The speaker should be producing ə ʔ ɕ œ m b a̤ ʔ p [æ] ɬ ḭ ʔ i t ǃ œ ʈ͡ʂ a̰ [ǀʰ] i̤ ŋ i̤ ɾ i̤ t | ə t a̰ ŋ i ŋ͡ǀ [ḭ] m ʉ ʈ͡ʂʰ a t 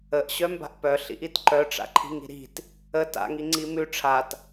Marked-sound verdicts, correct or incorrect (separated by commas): incorrect, incorrect, incorrect